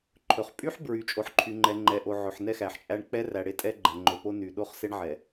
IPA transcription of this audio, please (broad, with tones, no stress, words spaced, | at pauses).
ǃʰɵ˨χ pʼy˦ħ bɹy˨ t͡ʃʼo˨ħǃʰy˨ŋ͡ǃɛ˨ ŋ͡ǃɛ˨ʔo˨ ʕɵ˨ħnɛ˦xæ˨ħt͡ʃʼæ˦ɳ k͡pɛ˦ ræ˨ɽe˦tʼɛ˦ ɡ͡ǃɛ˨ŋ͡ǃɵ˨po˦ ny˨ ɗo˦χse˦ɳʕɛ˨